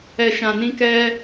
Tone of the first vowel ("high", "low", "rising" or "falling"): low